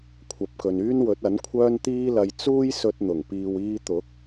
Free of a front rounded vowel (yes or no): no